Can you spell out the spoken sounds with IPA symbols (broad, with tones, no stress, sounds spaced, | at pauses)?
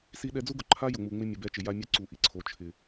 s i˦ ɗ ɛ˦ d͡z u˦ ɡ ʊ˨ ǃʰ a˦ j ʊ˨ ŋ͡m u˨ ŋ͡m ɪ˦ mʲ ʊ˨ b ɛ˦ t͡ʃ ɪ˨ j a˦ mʲ ʊ˦ ǀ u˨ ʔ i˨ ǀʰ o˨ t͡ʃʰ ɪ˨